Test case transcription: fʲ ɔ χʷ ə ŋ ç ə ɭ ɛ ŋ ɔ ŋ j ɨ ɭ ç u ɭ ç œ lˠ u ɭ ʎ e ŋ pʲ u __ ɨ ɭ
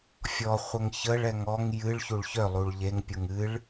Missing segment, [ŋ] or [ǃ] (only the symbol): ŋ